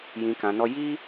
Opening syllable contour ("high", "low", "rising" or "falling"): low